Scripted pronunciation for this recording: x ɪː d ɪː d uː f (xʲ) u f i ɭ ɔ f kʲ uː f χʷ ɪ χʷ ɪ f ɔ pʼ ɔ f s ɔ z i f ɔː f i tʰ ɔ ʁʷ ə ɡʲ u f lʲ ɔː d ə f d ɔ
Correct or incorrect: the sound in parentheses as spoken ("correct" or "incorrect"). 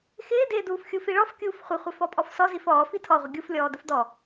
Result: correct